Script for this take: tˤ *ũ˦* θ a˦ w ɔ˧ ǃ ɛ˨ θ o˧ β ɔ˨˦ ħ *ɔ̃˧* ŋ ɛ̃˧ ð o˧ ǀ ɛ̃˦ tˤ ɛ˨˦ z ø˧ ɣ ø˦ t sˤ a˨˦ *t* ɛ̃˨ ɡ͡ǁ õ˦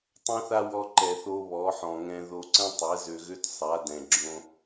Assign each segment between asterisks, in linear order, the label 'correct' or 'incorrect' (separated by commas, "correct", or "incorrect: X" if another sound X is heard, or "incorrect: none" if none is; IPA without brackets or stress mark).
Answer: incorrect: õ˦, incorrect: ɔ̃˨, incorrect: d